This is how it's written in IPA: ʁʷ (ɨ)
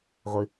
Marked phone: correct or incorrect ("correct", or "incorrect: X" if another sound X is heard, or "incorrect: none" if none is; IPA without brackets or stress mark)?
correct